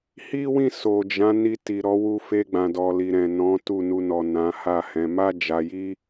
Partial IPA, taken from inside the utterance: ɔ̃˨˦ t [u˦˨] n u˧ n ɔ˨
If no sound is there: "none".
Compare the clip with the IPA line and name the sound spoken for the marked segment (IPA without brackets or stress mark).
u˦˨